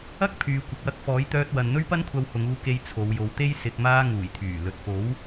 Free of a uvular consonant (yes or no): yes